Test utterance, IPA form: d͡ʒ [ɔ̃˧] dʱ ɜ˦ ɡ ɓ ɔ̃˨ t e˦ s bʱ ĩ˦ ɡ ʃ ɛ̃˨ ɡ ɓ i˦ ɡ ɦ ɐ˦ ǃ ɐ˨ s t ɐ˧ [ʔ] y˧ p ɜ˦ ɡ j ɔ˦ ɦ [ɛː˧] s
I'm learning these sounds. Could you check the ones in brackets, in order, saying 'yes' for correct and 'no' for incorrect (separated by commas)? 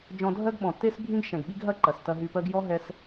yes, no, no